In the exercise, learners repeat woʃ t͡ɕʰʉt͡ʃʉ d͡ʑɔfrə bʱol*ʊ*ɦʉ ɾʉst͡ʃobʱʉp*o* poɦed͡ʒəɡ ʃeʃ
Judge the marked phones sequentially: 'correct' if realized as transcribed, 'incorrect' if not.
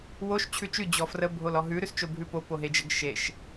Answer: incorrect, correct

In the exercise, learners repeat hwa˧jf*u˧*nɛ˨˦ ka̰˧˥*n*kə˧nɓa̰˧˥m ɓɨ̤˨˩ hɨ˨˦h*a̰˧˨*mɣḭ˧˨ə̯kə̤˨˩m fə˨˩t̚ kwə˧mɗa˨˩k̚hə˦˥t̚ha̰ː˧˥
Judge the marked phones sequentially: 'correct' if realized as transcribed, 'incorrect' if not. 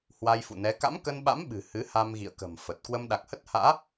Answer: incorrect, incorrect, incorrect

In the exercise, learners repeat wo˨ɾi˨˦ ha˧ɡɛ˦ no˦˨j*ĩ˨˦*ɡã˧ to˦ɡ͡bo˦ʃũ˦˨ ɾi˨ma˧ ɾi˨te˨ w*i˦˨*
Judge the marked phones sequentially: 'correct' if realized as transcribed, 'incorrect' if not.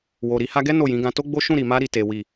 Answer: correct, incorrect

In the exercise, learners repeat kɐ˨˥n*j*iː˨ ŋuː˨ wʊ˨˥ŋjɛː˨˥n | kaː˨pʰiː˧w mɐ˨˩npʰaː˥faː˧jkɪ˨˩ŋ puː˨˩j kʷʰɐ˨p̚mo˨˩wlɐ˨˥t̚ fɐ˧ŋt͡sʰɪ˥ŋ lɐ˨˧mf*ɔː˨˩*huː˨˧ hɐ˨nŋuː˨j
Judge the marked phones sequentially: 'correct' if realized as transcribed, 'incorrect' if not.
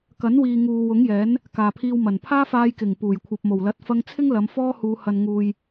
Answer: incorrect, incorrect

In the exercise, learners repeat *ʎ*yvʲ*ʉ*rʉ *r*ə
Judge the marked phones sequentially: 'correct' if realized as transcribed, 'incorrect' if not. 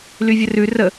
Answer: incorrect, incorrect, correct

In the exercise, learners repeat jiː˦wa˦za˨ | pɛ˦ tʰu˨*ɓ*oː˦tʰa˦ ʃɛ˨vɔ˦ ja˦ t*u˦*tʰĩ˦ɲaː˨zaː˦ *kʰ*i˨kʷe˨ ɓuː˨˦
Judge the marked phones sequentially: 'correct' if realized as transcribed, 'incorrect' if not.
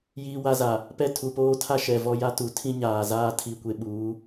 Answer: incorrect, incorrect, incorrect

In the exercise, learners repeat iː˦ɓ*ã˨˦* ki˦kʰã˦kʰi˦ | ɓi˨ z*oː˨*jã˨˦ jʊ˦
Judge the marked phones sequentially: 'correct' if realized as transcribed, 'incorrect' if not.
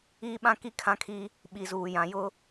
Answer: incorrect, incorrect

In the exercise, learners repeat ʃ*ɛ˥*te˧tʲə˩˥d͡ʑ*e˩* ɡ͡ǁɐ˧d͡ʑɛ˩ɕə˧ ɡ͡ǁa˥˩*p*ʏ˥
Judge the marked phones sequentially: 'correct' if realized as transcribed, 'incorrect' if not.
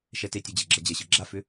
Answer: incorrect, correct, incorrect

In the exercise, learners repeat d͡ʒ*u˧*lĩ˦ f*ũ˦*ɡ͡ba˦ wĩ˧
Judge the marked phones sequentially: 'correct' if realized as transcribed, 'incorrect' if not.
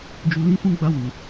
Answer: correct, correct

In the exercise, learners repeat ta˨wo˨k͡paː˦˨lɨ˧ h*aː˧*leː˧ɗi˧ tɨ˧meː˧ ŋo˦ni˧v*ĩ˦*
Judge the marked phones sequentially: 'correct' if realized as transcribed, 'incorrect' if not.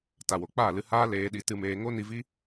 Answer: incorrect, incorrect

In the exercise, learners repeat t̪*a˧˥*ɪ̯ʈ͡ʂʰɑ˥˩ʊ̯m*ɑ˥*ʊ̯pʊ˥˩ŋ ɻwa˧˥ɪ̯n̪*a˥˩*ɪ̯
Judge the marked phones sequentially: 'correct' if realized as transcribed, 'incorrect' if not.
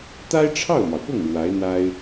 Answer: incorrect, incorrect, incorrect

